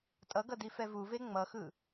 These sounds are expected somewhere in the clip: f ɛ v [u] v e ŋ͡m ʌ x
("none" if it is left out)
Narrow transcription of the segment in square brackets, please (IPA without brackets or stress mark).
u